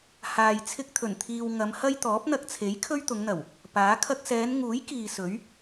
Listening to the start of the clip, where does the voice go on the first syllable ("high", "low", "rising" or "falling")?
low